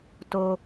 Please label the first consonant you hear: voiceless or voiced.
voiceless